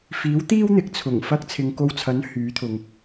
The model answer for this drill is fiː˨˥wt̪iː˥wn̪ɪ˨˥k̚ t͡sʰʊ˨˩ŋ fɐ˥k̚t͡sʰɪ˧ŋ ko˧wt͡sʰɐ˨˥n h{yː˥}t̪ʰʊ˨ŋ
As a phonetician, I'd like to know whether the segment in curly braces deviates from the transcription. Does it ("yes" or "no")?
yes